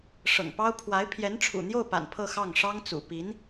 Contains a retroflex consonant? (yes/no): yes